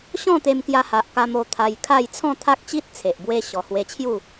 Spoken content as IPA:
ɕɔ̃˥˧t̪e˧m kja˧ha˨ʔ ka˧mo˧ t̪ʰa˧jkʰa˥˧j t͡sʰɔ̃˥˧t̪ʰa˦k̚t͡ɕi˦t̚ t͡sʰe˨ʔbwe˦ɕɔ˨˩ hwe˧t͡ɕʰju˥˧

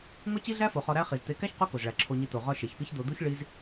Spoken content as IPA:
ŋo˦t͡ɕi˦ɮæ˦fo˨ χɒ˧ɾæ˦χi˨z t̪e˨˦kæ˦ç qo˦ko˨zɭæ˨ ǁʰo˧ɲi˧ t̪o˨ʁɒ˧ ʃe˨çpi˦çd̪o˧ d̪u˦ç ɭi˦z

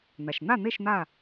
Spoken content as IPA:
n̪a˩ʃn̪a˥˨n̪e˥˨ʃ n̪a˥˨

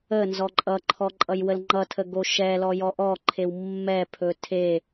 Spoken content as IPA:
ə nzɔǃʼʌǃʰɔ ǃʼʌjwəlŋ͡ǃʌtʰə ɡoʃɛlɔ jɔʔɔǃʰew mːɛpʰɵ tʰe

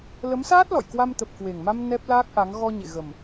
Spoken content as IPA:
lə˨˦msaː˦˥t̚lɔ̰˧˨jkwa˧m t̪ə˨˩p̚kwe˨˩ŋma˧m nɛ˦˥p̚laː˦˥k̚ʔa˨˦ŋ ɣɔ˧ɲḛ˧˨ ɣə˨˩m

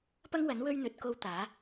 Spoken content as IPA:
pɐ˥ŋwɐ˨˥n wɵ˥ɥn̪ɵ˨˥t̚ ko˧w t̪aː˨˥

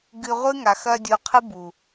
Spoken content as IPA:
ɡɨ˧ʁʷɨ˦ ŋa˨xɐ˧ dʲu˧qʰɨ˦bu˨

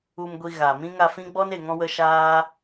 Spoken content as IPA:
u˧mɡʷi˧ ɣa˨ mĩ˦ ŋa˧fĩ˦ɡ͡bɔ˦n e˨ŋɔ̃˧wə˧ ʃaː˦

